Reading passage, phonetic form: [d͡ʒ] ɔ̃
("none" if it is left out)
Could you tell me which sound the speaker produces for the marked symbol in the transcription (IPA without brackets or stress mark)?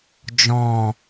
d͡ʒ